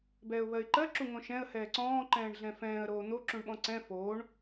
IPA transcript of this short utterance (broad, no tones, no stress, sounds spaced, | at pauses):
b ɛː ʊ̯ β ɜ ɪ̯ ǃ ɜ ǁ u ŋ õ ʃ ɛ̃ ə̯ h ɛː ǀ ɔ̃ː ǃ ɛ̃ː ɳ ɮ ɛ̃ f ɛ̃ː ə̯ ɾ oː n̪ o ǁ ũ ɳ ɓ ɔ̃ ǀ ɛ̃ f oː ɳ